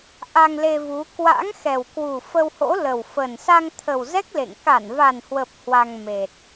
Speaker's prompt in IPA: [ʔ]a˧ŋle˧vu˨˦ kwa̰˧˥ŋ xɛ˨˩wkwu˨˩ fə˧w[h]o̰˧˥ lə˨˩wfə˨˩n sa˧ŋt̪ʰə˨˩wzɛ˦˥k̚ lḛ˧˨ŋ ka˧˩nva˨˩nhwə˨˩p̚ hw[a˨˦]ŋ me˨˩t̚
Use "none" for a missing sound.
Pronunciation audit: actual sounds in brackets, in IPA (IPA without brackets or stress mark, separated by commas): ʔ, h, a˧